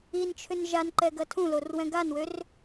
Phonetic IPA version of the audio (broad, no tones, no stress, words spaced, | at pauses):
int͡ʃʰʏn ʒanǃɛɡɐ tʰũlorwɛ̃ ɡanwør